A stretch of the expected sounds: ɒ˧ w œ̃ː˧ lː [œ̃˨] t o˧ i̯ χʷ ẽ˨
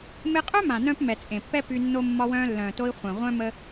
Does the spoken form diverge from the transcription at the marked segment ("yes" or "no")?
yes